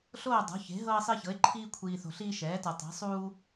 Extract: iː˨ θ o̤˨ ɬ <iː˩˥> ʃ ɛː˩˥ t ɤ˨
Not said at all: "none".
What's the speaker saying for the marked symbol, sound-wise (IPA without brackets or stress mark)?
iː˦